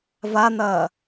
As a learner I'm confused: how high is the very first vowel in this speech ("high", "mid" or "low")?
low